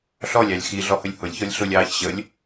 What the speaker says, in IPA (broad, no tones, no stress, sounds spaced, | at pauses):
ɬ ɔ lʲ ɑ lʲ x i ɮ ɔ h ə lʲ h ʊ lʲ ç ɔ lʲ ɬ ʊ lʲ ɑː ç ɕ ə lʲ